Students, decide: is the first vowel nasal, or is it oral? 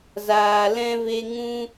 oral